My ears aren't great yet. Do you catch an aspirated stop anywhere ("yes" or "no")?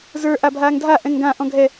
no